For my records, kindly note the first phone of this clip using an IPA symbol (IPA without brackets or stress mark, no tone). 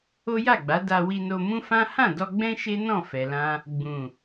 o